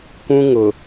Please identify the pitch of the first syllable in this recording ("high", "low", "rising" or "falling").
high